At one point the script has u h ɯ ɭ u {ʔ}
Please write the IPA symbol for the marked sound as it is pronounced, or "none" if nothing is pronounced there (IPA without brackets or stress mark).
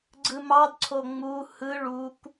k